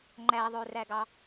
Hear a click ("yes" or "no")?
yes